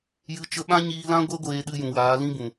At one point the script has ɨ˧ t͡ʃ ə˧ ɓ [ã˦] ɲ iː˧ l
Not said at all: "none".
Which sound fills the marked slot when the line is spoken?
ã˦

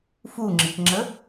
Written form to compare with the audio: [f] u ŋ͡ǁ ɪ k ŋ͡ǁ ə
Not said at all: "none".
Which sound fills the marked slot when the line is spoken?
f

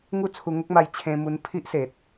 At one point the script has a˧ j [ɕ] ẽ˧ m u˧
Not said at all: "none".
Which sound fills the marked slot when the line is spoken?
t͡ɕʰ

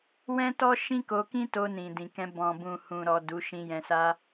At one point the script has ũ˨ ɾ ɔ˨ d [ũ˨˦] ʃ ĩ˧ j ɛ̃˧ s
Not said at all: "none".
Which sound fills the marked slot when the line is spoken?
u˨˦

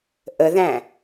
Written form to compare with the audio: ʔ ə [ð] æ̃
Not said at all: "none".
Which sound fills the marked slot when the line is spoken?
ð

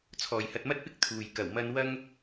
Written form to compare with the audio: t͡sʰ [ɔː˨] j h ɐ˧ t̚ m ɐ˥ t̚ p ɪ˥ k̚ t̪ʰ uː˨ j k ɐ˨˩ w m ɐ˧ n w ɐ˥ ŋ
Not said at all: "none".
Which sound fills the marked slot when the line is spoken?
ɔː˨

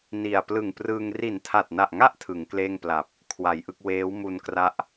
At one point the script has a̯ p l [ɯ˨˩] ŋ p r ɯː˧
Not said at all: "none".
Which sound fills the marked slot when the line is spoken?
ɯ˨˩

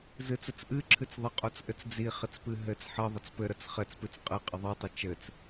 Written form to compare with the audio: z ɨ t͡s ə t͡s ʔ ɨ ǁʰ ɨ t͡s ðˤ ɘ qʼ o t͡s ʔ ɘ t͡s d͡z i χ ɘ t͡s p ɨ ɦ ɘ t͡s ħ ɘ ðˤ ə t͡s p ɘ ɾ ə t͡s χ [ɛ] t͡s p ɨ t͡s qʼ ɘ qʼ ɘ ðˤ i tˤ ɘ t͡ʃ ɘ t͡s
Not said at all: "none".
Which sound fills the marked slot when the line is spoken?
ɘ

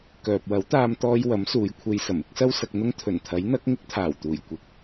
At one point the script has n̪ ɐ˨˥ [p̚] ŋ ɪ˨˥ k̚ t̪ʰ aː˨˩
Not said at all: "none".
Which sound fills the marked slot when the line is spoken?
k̚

